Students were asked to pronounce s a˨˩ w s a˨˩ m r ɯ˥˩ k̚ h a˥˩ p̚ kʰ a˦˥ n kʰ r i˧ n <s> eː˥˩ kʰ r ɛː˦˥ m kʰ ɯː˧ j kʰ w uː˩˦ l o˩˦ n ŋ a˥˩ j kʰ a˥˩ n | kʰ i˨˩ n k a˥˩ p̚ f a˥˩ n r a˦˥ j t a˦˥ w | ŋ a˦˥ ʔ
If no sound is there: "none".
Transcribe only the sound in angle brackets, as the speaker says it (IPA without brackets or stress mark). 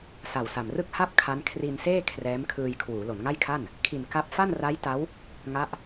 s